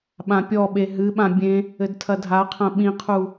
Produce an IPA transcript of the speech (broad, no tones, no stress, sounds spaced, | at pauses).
ɓ ã pʲ ɔ ɓ e ɦ ɨ ɓ ã bʲ ẽ | ɘ d tʰ ɐ dʱ a qʰ ɐ̃ ɓ ĩ qʰ u